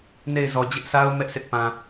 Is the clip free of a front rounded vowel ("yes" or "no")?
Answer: yes